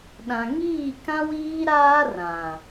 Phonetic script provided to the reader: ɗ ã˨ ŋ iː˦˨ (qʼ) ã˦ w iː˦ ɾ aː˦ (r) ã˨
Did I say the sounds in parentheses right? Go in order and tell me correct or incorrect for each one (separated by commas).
incorrect, correct